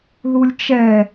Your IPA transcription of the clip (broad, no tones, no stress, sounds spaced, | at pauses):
ð u lʲ t͡ʃ ɛ